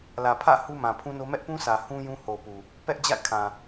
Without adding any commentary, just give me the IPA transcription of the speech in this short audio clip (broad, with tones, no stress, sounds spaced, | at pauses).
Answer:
l ä˨ pʰ ä̰˦˨ h u˦ m ã˨ pʰ ũ˦ n o˦ m ɛ˦ ʔ p ũ˦ sʰ ä˨ h ũ˦ j ũ˦ h o˨ p u˨ | p ɛ˦ ʔ d͡ʑ a̰˦˨ ɪ̯ kʰ ã˨